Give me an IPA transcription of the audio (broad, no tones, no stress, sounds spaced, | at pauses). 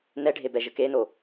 n ɛ ɖʱ e b ɛ ʒ ə k e n o